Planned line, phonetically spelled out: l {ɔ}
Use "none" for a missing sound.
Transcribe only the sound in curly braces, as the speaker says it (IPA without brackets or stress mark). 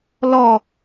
ɔ